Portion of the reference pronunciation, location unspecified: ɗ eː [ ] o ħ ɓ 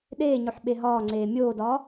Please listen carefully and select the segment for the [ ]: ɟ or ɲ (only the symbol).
ɲ